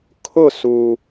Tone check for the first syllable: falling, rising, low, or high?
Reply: falling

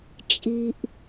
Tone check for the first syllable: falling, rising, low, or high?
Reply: low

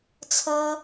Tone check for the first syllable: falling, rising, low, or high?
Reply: high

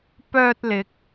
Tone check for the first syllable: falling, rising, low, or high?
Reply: low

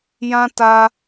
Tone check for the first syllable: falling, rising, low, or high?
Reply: high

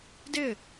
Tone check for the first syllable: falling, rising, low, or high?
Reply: falling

